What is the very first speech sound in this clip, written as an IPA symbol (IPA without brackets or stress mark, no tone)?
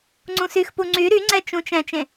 ŋ͡ǀ